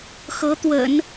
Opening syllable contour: rising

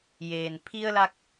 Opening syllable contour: low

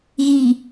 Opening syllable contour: low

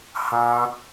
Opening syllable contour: high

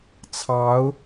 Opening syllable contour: rising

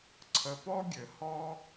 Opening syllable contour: low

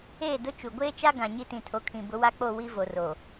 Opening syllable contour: falling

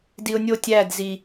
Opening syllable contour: low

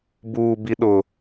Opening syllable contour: low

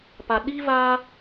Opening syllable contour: low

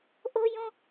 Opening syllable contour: high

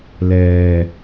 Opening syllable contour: low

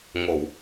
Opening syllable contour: low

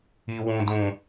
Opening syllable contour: low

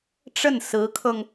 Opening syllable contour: falling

